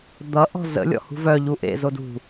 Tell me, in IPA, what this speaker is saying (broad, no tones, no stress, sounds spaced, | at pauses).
d̪ ʌ ʔ ɔ̤ z ə̰ lʲ ɔ̰ h ṳ v œ ʎ u ʔ ḛ z o d ṳ